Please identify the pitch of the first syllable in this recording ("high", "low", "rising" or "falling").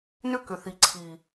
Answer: high